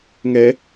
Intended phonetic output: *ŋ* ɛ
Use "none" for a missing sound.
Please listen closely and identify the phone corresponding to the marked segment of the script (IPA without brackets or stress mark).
ŋ